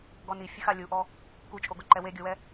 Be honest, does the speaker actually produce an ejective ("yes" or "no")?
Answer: yes